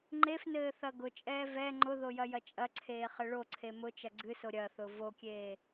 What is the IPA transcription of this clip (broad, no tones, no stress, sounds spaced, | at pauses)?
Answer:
ŋ͡ǃ e f n ɘː θ ɐ ɡ ʊ t͡ʃʼ ɛː v ɛ ŋ͡ǃ ʊ ð o j ɐ j ɐ t͡ʃʼ ɐ ǀʰ eː χ ɘ ɭ o ǀʰ e m ʊ t͡ʃ ɐ ɡ͡ǀ ɨ s o ɾʲ ɐ θ ʊ v o kʲ eː